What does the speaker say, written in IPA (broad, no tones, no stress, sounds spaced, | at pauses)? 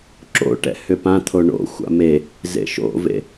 ǁ o̰ ʈ ɛ̰ h ʏ p ã t̪ʰ o ɳ o̰ xʷ a̰ m e | z ḛ ʃ o̰ v ḛ